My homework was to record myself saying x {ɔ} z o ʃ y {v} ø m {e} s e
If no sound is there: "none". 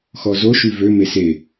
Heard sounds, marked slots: ɔ, v, e

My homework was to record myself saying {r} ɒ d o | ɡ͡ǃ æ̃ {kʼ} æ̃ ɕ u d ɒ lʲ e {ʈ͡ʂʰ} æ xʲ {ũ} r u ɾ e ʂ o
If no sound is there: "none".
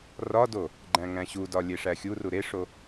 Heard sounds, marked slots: r, ŋ, ʂ, u

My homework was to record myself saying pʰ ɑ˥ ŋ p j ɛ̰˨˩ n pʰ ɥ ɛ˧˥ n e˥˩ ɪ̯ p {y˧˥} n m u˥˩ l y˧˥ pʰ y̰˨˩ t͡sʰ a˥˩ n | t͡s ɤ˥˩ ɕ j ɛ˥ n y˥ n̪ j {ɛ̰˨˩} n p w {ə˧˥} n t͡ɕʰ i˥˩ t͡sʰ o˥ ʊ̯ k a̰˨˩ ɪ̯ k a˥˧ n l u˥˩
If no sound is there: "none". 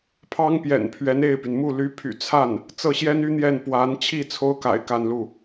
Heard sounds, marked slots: y˩, ɛ˥˩, a˧˥

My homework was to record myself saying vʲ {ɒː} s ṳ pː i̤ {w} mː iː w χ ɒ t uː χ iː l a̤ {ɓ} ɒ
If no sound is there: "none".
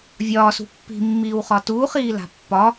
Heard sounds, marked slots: ɒː, none, pː

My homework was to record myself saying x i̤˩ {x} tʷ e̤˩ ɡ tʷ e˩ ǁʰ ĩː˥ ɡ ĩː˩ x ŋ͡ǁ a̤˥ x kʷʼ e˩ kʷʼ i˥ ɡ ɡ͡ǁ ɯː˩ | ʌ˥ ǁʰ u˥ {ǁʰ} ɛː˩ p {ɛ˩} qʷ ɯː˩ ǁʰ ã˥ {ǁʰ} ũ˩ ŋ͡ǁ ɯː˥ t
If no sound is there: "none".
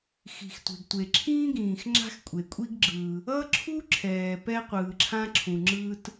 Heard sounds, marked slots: x, ǁʰ, ɛ˥, ǁʰ

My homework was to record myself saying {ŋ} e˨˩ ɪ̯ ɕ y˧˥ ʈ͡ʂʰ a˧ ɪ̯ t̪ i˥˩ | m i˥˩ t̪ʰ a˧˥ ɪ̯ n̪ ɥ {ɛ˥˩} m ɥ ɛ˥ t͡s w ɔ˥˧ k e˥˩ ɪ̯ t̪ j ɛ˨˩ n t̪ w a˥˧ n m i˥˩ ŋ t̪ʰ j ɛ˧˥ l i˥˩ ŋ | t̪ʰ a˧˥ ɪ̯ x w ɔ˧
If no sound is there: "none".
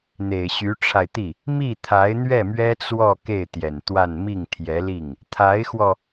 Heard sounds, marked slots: n̪, ɛ˥˩

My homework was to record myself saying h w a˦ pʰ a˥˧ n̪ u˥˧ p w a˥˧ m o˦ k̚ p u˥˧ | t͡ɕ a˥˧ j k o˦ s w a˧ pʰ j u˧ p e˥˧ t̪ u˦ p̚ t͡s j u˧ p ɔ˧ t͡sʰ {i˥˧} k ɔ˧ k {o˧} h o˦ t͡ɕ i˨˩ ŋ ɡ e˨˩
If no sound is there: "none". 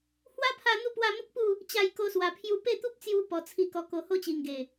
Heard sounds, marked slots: i˧, o˧

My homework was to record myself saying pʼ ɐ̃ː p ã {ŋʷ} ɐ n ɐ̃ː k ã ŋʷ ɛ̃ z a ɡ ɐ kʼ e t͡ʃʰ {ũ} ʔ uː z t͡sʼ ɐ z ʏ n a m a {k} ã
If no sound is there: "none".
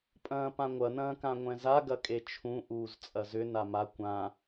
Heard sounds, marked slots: ŋʷ, ũ, kʷ

